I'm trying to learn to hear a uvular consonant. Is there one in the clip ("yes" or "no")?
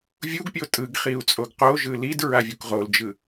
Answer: yes